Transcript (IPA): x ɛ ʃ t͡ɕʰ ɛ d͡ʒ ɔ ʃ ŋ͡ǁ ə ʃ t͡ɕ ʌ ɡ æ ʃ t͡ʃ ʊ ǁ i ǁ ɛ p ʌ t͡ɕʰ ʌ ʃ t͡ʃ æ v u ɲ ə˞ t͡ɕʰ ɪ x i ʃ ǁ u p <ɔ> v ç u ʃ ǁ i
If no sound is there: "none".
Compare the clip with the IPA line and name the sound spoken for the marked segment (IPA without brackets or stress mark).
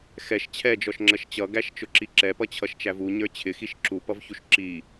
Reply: ʌ